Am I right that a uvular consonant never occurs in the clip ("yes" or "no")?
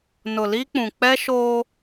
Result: yes